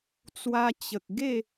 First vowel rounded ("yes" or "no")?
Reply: no